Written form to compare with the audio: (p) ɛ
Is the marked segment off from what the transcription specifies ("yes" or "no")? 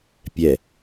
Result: yes